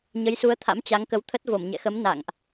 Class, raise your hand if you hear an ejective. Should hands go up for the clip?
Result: no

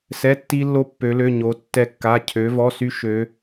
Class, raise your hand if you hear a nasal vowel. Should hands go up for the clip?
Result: no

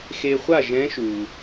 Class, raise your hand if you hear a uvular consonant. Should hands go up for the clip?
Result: yes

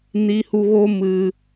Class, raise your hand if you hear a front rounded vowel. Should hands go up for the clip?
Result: no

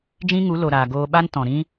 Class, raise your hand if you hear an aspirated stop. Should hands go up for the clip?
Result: no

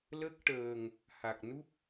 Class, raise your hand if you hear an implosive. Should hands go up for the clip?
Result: no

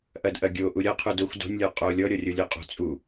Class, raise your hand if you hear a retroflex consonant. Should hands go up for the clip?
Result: no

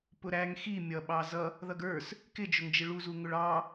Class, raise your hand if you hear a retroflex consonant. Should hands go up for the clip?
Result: yes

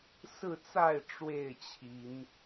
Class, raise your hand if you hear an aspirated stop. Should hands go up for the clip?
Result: yes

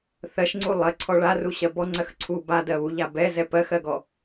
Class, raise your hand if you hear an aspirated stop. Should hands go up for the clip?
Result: yes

